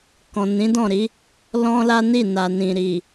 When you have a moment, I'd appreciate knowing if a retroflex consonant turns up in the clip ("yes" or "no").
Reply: no